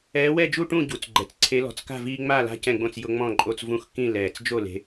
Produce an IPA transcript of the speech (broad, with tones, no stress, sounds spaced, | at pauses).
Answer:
ɛː˨˦ w ɛ˥˨ d͡ʒ u˥˨ ʈ ũ˥˨ ɟ u˨˩ t͡s ɡ͡ǃ ɛ˨˩ t͡s ǀʰ e˨˦ l ɔ̤˨˩ t͡s k a̤˥˨ v iː˦ ŋ͡m a˥˨ l a̤˦ c ɛ̃˥˨ ɡ͡b õ˥˨ t͡s j ʊ˦ ŋ͡m ɔ̃˥˨ ǃʼ o˦ t͡s v ũ˦ x k ĩ˥˨ l ɛː˨˩ t͡s d͡ʒ o˥˨ l e̤˨˦